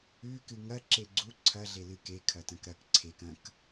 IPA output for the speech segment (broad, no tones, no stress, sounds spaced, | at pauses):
ʉ k ɨ ŋ ɐ ǁ e ɡ͡ǀ u ǀʰ ɐ ɮ e l ɨ k e kʰ ɐ t ɐ̃ k ɾ ɐ k ǀʰ e k ɐ̃ k